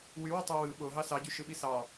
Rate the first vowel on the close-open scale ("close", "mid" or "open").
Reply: close